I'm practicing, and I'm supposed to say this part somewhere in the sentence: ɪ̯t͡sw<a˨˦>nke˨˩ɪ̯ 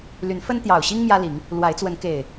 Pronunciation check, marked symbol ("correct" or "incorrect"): incorrect